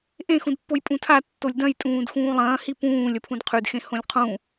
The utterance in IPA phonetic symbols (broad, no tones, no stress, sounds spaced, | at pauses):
ʔ ẽ x ũ d pː o j pʼ ũ tʰ a tː o lʲ d ɐ̃ j tʼ ũː d x ũː lˠ ɐ̃ː h i p ũː lʲ ɐ pʰ ũ d qʰ ʉ d x ẽ h õ lʲ qʰ ũ